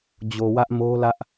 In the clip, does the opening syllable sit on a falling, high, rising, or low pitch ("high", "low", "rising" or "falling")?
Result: low